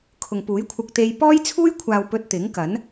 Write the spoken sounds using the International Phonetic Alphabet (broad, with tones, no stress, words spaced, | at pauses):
kʰʊ˨ŋpuː˨˥jkʷʰɐ˧k̚t̪e˧j pɔː˥jt͡sʰuː˥jkʷʰaː˨w pɵ˧t̚ t̪ɪ˨˥ŋkɐ˨˥n